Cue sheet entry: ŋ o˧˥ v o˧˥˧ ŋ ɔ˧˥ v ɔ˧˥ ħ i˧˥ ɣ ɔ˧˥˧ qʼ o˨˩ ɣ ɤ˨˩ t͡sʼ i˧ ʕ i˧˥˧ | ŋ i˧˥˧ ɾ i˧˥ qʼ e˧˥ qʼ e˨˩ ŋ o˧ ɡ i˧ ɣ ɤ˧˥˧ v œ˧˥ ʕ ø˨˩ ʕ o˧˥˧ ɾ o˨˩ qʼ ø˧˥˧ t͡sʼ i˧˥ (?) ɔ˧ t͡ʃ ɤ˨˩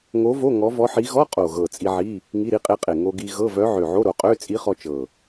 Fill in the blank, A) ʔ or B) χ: B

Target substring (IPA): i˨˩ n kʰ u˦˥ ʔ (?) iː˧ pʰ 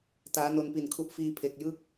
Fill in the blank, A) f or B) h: A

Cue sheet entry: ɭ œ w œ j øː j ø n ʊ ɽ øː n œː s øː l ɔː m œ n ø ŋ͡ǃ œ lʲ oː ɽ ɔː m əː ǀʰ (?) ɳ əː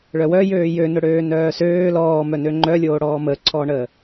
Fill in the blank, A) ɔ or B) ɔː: B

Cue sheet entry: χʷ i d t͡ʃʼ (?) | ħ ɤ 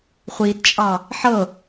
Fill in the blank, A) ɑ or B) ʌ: A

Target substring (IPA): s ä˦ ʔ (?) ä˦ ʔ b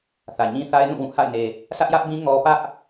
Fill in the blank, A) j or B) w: A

